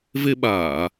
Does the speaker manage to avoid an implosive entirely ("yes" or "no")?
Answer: no